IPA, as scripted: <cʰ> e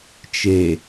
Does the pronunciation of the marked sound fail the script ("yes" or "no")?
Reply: yes